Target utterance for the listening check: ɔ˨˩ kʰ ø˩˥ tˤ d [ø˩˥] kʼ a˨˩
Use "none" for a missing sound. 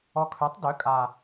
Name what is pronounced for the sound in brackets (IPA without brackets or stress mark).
ø˩˥